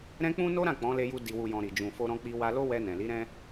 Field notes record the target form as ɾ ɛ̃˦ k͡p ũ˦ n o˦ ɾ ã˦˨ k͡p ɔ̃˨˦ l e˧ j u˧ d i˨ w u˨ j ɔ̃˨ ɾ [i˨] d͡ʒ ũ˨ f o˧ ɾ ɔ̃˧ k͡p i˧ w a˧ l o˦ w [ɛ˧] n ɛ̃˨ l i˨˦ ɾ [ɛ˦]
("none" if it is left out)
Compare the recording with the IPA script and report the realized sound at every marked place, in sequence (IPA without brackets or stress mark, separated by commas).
i˨, ɛ˧, ɛ̃˦